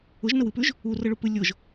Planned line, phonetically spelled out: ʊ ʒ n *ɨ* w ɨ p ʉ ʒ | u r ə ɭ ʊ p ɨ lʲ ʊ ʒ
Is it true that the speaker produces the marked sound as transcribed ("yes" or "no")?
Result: no